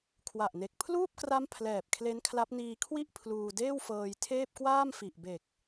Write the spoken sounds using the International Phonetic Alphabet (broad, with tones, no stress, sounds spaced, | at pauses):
kʰ w a˨˩ ʔ n e˨˩ k̚ pʰ l uː˥˩ p̚ k r a˦˥ m pʰ l ɛː˨˩ p̚ kʰ l e˦˥ n kʰ l a˦˥ p̚ n iː˧ kʰ w i˥˩ ʔ pʰ l uː˧ d eː˥˩ w f ɤː˧ j tʰ eː˥˩ p̚ k w aː˥˩ m f i˨˩ ʔ b e˨˩ k̚